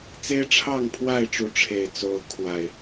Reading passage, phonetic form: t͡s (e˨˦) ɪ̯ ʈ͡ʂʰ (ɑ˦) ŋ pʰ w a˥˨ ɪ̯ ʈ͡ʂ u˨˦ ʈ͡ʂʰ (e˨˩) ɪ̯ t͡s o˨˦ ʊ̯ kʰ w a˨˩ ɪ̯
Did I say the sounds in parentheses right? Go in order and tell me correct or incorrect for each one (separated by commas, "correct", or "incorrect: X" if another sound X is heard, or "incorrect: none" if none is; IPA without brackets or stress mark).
incorrect: e˦, incorrect: ɑ˥˨, correct